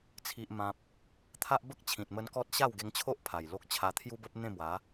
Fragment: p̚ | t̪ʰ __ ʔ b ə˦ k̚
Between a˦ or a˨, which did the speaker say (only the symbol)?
a˦